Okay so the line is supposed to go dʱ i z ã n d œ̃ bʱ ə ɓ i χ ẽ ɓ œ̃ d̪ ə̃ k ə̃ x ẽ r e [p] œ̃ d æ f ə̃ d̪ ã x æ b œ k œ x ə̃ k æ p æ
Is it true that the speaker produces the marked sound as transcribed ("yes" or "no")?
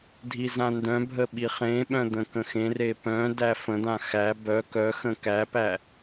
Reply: yes